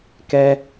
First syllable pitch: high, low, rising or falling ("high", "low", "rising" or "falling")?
high